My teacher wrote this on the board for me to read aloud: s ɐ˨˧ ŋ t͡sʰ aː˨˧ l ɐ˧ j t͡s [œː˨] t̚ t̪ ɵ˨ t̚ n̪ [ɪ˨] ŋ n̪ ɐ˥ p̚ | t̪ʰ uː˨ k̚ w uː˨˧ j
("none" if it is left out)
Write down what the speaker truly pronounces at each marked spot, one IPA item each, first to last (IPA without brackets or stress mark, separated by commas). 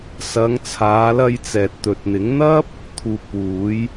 ɛː˨, ɪ˨˥